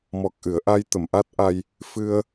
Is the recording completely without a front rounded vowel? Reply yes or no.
yes